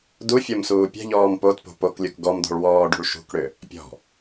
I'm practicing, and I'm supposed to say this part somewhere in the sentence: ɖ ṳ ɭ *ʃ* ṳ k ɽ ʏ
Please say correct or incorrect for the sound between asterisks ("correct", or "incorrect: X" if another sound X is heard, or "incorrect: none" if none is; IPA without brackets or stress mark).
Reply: correct